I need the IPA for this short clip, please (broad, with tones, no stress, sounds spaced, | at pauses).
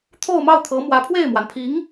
t̪ʰ o˥˧ ʊ̯ m ɑ˥˩ ʊ̯ t̪ʰ ɤ˧˥ m w ä˧˥ pʰ w e˥˩ ɪ̯ m w a˩ n pʰ i˧˥ ŋ